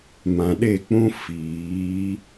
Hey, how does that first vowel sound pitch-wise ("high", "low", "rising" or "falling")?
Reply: low